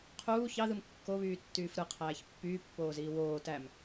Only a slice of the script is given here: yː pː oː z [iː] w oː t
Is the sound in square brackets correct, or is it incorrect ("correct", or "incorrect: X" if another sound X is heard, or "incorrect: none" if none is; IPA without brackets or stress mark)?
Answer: correct